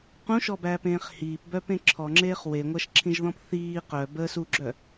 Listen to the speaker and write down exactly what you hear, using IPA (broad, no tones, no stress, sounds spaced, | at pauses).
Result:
q ũ ʃ ɔ b æː p ẽː χ h iː p b œ p ẽ ǁʰ ɔ ŋ͡ǁ eː χ w e ŋʷ æ ʃ ǁʰ ĩ ʒ ð ɔ̃ p θ iː q œ b əː s u ɡ͡ǁ œ